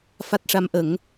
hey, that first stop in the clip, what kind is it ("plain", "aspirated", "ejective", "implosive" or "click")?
plain